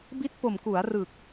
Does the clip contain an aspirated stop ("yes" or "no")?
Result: no